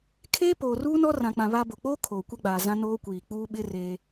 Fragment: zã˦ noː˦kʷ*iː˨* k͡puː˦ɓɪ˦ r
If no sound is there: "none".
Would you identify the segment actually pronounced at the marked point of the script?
iː˨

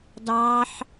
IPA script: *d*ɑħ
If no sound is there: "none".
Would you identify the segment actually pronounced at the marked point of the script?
d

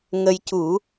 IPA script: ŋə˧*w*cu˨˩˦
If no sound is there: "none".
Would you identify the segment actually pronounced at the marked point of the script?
j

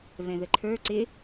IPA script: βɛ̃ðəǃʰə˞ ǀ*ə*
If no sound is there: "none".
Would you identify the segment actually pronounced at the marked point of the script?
ɪ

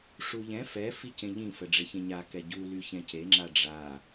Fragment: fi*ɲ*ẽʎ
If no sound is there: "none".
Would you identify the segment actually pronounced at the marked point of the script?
c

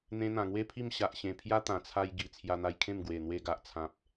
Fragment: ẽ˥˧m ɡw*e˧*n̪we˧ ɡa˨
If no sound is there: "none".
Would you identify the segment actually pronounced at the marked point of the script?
e˨˩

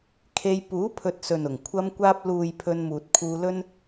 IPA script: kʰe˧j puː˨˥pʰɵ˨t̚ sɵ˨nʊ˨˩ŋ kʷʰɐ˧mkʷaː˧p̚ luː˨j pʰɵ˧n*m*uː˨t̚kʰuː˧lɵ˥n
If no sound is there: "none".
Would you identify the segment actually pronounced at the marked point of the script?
m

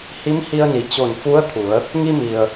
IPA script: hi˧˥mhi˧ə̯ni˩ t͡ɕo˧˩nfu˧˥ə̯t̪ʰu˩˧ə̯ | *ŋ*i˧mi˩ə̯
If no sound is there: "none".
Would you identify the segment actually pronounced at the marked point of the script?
ŋ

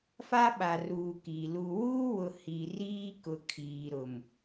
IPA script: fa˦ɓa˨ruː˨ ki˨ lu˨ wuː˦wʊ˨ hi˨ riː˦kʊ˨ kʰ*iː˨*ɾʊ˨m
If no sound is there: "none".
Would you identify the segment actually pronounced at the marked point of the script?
iː˨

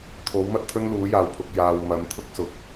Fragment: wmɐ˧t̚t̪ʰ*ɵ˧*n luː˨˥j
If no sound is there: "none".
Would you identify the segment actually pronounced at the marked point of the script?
ɵ˥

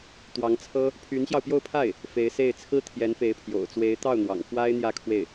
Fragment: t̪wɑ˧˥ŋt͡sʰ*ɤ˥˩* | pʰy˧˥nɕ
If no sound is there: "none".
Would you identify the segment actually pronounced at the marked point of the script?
ɤ˥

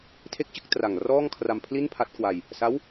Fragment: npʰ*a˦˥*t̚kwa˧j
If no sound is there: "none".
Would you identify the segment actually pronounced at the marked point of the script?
a˦˥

